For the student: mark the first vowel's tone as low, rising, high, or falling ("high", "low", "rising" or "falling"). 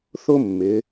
high